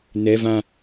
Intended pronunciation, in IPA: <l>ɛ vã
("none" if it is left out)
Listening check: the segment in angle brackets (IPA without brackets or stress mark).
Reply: n